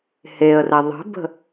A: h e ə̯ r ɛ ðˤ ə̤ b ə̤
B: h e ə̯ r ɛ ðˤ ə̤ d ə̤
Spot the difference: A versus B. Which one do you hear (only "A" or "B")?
A